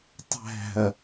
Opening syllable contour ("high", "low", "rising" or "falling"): falling